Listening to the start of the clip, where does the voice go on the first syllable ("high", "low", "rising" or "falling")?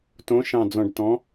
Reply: rising